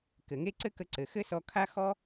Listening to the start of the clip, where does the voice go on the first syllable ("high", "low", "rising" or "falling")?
low